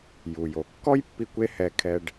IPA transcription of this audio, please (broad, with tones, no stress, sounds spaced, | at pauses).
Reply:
j u˩ j o˩ kː ɔ˥ j pː i˧ kʷ e˥ h ɛ˧ kʰ ɛ˧ ɖ